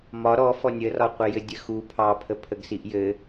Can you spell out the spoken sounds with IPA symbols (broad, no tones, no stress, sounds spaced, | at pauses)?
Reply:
m ɒ ɾ ɔ f ɔ nʲ ə r ɒ qʷ ɘ j ɘ dʲ ə x u pʰ ɑ pʰ ə pʰ ə ɡ s i ʔ j ɘ